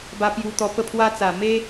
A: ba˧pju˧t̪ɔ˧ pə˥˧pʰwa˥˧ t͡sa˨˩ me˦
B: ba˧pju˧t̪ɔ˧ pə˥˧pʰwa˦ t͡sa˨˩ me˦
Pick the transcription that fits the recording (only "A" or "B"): B